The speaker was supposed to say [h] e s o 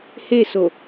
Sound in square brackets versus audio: correct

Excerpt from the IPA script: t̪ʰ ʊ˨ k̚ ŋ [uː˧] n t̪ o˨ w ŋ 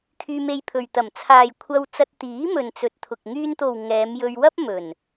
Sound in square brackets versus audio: incorrect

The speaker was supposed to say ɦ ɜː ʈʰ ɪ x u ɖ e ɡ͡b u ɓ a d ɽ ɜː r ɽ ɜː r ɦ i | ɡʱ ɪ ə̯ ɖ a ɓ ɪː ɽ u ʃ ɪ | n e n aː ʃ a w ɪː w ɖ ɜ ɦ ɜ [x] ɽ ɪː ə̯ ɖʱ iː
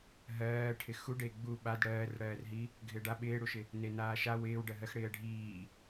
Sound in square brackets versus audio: correct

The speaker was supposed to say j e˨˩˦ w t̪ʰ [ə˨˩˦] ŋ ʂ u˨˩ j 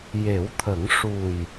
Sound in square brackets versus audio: correct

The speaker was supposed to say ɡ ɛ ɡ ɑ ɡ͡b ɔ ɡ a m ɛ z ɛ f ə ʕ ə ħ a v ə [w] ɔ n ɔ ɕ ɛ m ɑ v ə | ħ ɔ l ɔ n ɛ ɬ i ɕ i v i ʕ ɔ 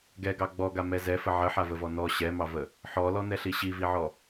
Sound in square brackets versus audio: incorrect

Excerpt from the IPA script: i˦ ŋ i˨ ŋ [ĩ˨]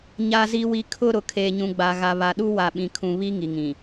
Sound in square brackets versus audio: correct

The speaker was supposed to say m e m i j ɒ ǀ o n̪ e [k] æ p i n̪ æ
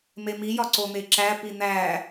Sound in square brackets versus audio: incorrect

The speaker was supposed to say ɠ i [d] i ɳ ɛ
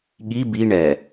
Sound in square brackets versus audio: incorrect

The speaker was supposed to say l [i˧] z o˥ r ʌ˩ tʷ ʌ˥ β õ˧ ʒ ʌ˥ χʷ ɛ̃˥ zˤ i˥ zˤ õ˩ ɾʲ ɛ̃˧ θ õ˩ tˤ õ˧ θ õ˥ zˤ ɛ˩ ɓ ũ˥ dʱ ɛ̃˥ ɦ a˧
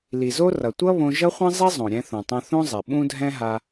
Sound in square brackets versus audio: incorrect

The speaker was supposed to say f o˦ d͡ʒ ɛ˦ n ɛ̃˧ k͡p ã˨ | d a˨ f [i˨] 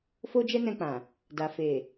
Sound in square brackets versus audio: incorrect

